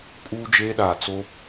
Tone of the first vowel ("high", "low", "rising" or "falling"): high